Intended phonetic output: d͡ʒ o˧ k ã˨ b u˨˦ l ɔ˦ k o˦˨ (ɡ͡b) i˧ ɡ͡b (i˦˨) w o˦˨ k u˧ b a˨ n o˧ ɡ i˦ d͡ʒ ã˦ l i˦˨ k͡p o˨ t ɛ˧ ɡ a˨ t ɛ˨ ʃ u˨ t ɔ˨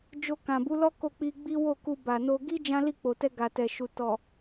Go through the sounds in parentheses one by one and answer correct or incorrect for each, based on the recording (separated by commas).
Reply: incorrect, incorrect